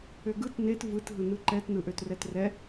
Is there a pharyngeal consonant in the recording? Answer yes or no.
no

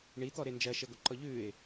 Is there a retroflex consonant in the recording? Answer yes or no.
yes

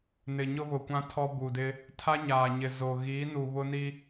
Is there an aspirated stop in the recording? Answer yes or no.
yes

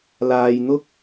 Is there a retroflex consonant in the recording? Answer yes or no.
no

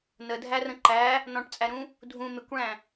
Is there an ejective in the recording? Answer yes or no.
yes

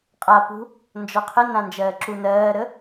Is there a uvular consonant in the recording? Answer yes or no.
yes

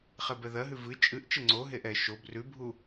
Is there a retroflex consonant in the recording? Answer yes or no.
no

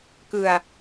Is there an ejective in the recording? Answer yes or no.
no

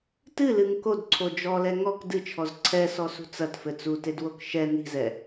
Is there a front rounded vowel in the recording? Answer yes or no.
no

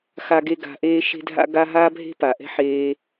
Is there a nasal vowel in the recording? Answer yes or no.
no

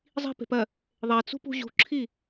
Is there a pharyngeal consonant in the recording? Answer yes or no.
no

